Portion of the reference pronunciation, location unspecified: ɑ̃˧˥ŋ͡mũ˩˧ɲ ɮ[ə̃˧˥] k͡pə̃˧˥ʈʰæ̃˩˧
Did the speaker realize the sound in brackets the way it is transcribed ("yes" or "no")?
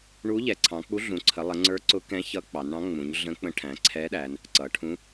yes